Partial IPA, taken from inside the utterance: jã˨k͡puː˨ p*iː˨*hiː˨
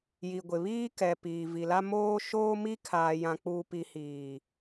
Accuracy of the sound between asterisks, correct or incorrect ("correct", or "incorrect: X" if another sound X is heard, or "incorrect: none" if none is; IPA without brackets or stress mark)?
incorrect: i˨